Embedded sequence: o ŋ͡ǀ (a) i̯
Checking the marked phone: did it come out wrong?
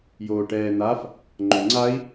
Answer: no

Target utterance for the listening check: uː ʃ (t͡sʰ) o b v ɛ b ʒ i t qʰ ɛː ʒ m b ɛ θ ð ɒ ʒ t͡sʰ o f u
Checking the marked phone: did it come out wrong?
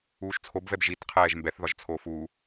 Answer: no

